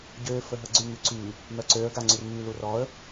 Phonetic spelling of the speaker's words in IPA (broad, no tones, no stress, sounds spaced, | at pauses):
ɟ ø f ə ɦ ə ɡ͡ǀ y ŋ y ǀ y | m œ ǀ ø ə̯ ɡ a ŋ͡ǀ y r m y l u r ɔ ə̯